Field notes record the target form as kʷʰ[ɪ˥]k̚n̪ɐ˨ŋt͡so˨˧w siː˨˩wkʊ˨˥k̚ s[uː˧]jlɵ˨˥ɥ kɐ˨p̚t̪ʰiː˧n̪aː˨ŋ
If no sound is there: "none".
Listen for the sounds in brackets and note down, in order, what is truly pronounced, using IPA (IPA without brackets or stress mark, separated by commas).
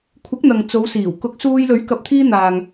ɪ˨˥, uː˧